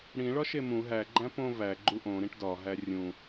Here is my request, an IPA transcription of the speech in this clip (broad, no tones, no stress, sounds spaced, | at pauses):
ɽ ĩ ɭ ɒ ʃ e m ũ ɦ æ ɡ͡ǃ æ̃ p õ v æ ɡ͡ǃ u ʔ õ ɾ ĩ ʈ d ɒ ɦ æ rʲ ũ